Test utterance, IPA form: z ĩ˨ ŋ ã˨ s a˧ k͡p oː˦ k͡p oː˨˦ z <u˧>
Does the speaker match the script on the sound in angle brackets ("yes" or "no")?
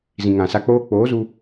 yes